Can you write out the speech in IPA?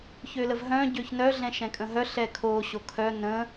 ç ø l ə v ɦ œ̃ ɟ ø ç n œ ɮ ɛ̃ ʃ ɛ̃ kʼ ə̃ ɦ œ ɬ ɛ kʰ o ɕ o kʰ œ n ə̃

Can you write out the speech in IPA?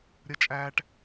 ɾʲ ə˦ t͡ʃʼ æː˦ ʈ

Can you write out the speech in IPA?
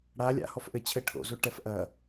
ɽ a lʲ a̰ h ɔ f ʔ ɘ t͡ɕʰ ɘ ʈʰ o̰ z o ʈ ɛ f ʔ ɐ

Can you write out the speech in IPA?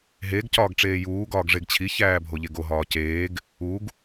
ɦ e ɡ c ɒː ɡ ʈ͡ʂ eː j uː ɡ ɒː ɡ ʐ e ɡ t͡ɕʰ i ç æː bʱ o ʎ e ɡ o ɦ ɒː c eː ɡ | u ɡ

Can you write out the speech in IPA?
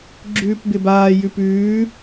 ɡ͡ǁ ʉː p b ɪ b aː j ʉ p ʉː

